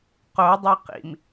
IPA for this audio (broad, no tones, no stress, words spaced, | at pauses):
qodˤe qḭm